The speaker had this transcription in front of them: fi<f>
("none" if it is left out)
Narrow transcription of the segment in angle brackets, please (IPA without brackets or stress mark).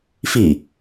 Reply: none